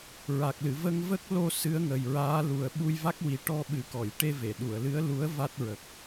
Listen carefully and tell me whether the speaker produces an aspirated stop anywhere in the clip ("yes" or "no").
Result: no